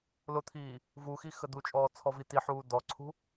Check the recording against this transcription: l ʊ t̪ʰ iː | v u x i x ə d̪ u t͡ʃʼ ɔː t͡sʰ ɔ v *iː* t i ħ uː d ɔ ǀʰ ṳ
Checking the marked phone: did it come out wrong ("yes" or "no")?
yes